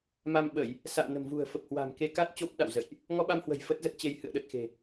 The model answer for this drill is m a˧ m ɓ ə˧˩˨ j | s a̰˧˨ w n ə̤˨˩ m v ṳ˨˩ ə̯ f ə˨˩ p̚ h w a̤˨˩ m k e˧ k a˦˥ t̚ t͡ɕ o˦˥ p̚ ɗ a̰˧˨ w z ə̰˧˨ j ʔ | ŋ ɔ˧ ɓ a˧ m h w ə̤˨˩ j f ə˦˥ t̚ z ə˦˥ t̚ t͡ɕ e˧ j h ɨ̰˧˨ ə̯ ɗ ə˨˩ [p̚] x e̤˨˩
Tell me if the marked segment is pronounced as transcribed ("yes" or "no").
no